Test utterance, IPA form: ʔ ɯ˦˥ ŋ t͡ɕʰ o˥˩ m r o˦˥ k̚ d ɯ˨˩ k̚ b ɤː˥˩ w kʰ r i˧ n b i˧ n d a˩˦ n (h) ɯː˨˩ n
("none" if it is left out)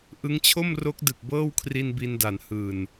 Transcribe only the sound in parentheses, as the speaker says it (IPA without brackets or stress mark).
h